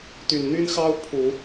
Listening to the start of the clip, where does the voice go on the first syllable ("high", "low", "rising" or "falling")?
low